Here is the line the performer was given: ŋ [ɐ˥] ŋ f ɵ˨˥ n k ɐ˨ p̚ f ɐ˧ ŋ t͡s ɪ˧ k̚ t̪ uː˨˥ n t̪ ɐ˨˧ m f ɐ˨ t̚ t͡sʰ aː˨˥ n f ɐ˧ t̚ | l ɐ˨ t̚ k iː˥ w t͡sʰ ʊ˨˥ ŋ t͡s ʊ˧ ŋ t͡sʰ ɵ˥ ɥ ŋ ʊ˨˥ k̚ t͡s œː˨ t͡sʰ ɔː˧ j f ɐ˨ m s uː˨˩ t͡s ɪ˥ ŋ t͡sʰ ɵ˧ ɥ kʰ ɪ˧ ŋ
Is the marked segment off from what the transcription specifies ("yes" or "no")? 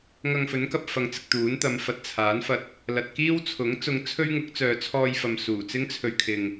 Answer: yes